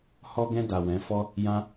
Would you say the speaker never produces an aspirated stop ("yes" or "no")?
yes